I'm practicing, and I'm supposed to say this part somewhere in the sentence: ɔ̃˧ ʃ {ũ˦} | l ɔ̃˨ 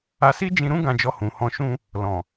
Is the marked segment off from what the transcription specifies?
yes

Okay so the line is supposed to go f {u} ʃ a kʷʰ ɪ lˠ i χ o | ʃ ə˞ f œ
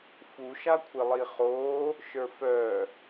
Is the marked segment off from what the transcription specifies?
no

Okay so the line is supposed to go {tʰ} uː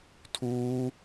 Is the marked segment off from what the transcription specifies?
no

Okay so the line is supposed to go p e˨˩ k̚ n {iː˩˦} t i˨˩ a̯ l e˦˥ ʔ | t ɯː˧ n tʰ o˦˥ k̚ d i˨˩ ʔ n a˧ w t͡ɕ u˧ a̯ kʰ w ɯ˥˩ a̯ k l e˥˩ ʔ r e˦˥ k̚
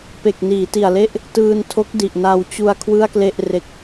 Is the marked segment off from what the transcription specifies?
no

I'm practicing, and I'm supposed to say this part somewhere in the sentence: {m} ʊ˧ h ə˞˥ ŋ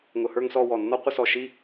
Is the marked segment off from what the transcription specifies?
yes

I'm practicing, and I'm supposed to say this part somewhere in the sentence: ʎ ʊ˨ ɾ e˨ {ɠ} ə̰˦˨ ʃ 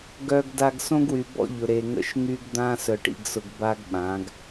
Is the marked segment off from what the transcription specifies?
yes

